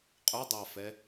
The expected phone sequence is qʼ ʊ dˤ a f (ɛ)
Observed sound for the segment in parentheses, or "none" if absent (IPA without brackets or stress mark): ɛ